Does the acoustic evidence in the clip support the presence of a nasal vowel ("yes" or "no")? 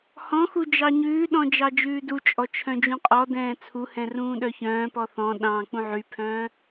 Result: yes